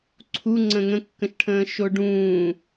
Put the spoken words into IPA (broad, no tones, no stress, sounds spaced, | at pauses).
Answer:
ǀʰ u ŋ͡ǀ ə̃ ŋ ə̃ kː ə̃ ʃ ʈʰ ə̃ː ʃ o ɖ ũː